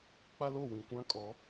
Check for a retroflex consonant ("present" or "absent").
absent